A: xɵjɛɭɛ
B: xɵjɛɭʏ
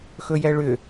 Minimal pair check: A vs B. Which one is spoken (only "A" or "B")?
B